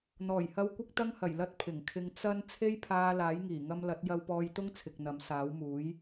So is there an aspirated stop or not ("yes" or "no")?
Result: yes